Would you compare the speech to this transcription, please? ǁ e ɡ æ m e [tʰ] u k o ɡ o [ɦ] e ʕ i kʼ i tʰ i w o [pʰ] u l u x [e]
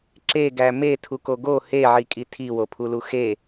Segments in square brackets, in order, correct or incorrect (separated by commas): correct, incorrect, correct, correct